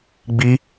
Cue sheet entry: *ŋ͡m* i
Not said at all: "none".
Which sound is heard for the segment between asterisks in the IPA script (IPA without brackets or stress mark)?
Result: ɡ͡b